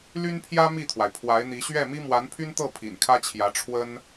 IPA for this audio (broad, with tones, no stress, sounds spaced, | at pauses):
l y˥ n pʰ j ä˥ m i˥˩ t̪ʰ w a˩ ɪ̯ pʰ w a˧˥ ɪ̯ n̪ i˧˥ ɕ ɥ ɛ˥˩ m i˥ m w a˧˥ n pʰ y˥ n t̪ ɤ˥˩ pʰ ḭ˨˩ n kʰ ä˥ t͡ɕʰ j ä˧˥ ʈ͡ʂʰ w ə˥ n